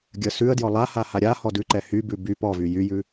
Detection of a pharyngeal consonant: absent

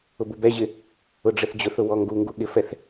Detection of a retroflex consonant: present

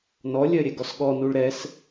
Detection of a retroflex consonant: present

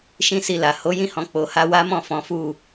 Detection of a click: absent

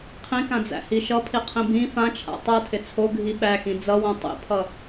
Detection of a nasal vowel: present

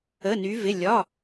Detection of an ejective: absent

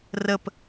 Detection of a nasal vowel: absent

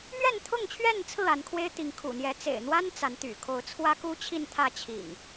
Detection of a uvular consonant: absent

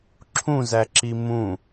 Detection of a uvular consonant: absent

